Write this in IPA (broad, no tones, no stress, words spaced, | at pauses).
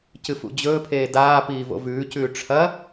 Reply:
cɨfṵd͡ʑɵːpʰeː daː piːvo̰vʉːcʉː ʈ͡ʂʰɐ